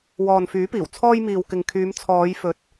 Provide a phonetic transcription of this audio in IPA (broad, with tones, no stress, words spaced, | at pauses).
wɔː˨nfyː˨˥piː˨˩w t͡sʰɔː˧jmiː˨wkɪ˨ŋkʰyː˨˧m t͡sʰɔː˨˧jfɵ˨t̚